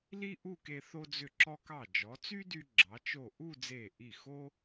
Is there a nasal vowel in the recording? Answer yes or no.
no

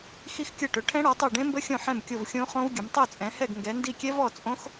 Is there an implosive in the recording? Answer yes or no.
no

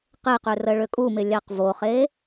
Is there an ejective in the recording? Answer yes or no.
yes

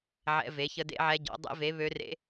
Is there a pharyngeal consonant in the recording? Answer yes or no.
yes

